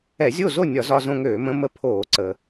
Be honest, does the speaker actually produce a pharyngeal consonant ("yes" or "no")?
no